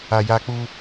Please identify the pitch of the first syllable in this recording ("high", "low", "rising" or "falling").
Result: high